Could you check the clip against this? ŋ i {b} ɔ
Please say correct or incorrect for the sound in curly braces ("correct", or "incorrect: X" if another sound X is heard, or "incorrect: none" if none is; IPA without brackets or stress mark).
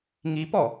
incorrect: p